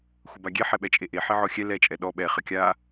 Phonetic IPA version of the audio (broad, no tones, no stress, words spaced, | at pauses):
xʷəbaɡʲe ħɛɓɛt͡ʃʼeʔe ħeʕɔxʲɛ lɛ t͡ʃʼɛɗɔ ɓɛ χəkʲa